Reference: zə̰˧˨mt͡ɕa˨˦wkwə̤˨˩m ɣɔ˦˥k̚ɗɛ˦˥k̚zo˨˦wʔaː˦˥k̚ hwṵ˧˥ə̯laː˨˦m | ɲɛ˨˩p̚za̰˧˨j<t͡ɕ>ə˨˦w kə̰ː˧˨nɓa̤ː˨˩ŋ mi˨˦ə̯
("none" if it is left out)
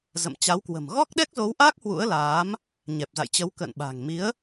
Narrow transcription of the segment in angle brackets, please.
t͡ɕ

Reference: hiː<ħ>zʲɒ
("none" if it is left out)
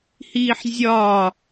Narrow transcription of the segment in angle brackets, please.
ħ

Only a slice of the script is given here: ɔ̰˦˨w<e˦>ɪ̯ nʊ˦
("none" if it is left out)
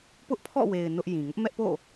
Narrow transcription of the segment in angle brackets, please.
e˨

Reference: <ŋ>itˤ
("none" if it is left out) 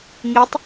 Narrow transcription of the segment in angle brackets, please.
ŋ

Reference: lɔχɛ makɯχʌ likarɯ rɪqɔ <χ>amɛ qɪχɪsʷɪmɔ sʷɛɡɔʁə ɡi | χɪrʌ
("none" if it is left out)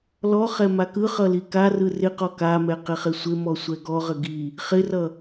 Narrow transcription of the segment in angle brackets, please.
k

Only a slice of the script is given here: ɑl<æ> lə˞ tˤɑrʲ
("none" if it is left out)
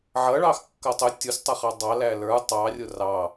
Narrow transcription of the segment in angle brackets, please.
æ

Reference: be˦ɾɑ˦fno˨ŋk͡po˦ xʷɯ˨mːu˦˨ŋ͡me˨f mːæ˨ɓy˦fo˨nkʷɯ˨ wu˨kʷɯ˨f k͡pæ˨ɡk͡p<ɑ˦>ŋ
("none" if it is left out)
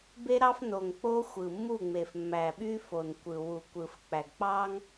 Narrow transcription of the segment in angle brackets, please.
ɑ˦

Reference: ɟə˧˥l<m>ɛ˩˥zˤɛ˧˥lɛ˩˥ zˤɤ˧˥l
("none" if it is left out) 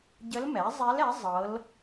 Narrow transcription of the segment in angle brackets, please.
m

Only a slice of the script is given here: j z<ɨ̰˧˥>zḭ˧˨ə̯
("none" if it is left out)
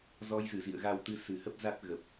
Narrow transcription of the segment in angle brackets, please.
ɨ˧˩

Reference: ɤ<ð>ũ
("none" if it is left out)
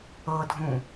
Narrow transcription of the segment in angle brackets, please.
dʱ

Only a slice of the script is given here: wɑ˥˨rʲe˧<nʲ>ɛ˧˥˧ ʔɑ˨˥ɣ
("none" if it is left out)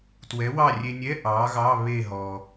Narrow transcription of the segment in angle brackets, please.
nʲ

